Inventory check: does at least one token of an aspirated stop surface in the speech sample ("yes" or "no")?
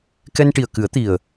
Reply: no